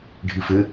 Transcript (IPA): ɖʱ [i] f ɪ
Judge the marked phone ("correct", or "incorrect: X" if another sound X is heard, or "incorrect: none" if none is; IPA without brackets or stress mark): correct